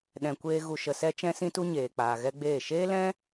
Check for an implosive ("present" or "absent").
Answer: present